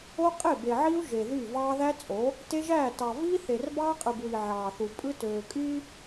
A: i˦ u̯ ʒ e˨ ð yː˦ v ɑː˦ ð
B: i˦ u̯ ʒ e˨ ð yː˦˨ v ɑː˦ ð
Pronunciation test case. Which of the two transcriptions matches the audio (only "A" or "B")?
B